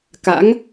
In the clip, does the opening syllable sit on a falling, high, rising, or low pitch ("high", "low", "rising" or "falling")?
rising